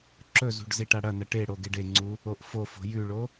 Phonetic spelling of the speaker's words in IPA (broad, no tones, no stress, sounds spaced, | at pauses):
ǁ ɵ z ṳ ɖ z i ʈ a ɽ ɐ n ɐ ʈ e ɽ o ɡ e ɖ e ŋ͡ǀ u | o ʔ f o f o̤ j ʉ ɭ o